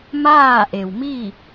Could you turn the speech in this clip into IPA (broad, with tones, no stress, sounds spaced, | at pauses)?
m aː˥˨ ʔ e˩ w m i˥˨